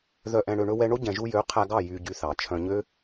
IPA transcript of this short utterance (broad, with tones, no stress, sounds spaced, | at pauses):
ð œ˨ ʔ ɛ̃˨ ɽ ø˨ ɳ ɵ˧ w ɛ˧ ɳ o˦ ɟ ɛ̃˨ ʒ u˧ j ø˨˦ qʰ æ˧ ɡ ɑ˦˨ j y˧ ɟ y˧ θ ɑ˨ t͡ʃʰ œ̃˧ ɲ ø˦